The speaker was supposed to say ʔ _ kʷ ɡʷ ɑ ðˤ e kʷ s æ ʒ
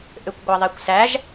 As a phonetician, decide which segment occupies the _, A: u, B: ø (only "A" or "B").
B